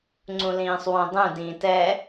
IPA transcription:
ŋ͡ǀũlĩːsˤwõdˤũ dĩːtɛ

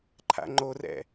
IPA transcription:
ǃʰa̰ŋ͡ǃorɛ̰

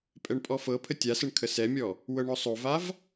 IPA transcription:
pʼɛɳpʼɔfɤpʰə tʲasəɳ kʰəsɛmʲɔ | wɤɳɔsˤovav

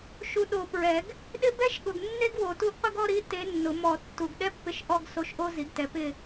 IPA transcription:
ʃu˨ɗo˨˩˦ pɹɛ˨˩˦ɡ | ɗɪ˥ bɛ˥ʃɠʊ˨ɡ nːe˥ɡwo˨˩˦tu˧˥ɡqʷɪ˥ɡ ɔ˥˧ɾi˧˥ te˧˥nːʊ˨˩˦ mɔ˨˩˦ tːu˨ɡ ɗɛ˥pːɪ˧˥ʃ ʔɔ˥˧ɡ so˧˥ʃʔo˥ zi˩˥ɡtɛ˩˥ pɪ˥˧

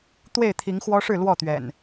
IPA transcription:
t̪we˥˨ɪ̯t̪ʰi˨˦ŋxwɔ˦ʂɻ̩˥˨ lwɔ˥˨t̪ɥɛ̰˨˩n

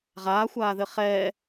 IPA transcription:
ʁaːxʷaːðɘ χɛː

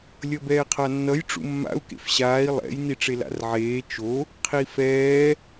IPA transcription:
lʲʌbɛːqʰanːʌj ʈ͡ʂṵmːa̰u̯ kḛfɕaːi̯ lˠɛ̰j niʈ͡ʂela̰rʕeː t͡ʃo | qʰifɛː

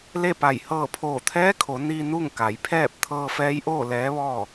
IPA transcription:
le˥˨pa˧˩j hɤː˧˩pʰoː˧˩t̪ʰɛː˧˥kʰo˩˧ ni˧ nu˥˨ŋ ka˩˧jpʰɛː˥˨p̚ t̪ʰɤː˧fɛː˧˥jʔoː˥˨ lɛː˧˥ʋɔː˥˨

